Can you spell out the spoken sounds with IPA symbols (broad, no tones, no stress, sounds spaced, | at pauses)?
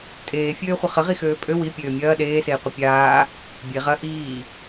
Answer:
tʼ eː fʲ øː χʷ ə χ ə ʁ i x øː pʼ ø w i pʲ øː mʲ ɐː ɗ eː s eː qʷ ə pʲ aː | bʲ e ʁ ɐ ʔ iː